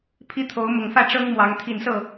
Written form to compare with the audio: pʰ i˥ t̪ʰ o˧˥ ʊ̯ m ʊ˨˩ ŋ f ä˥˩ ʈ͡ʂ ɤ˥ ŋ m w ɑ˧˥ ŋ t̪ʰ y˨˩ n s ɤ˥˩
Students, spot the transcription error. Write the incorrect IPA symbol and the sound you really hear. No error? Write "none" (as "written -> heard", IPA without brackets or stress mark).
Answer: y˨˩ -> i˨˩